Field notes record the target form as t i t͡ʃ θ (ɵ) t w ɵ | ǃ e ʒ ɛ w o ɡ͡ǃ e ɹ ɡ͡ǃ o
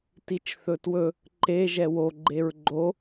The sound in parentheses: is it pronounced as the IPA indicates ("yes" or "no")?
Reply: yes